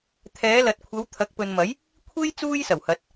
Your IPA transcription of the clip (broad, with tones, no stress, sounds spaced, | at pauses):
t̪ʰ ɛː˨˧ l ɐ˨ t̚ kʷʰ ɐ˨˧ w t̪ʰ ɐ˨˥ k̚ p ɵ˨ n m ɐ˨˥ j | kʷʰ e˥ j t͡s uː˥ j s ɐ˨˩ w h ɐ˨˥ t̚